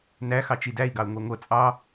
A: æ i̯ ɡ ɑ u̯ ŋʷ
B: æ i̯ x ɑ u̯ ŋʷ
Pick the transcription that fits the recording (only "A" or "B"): A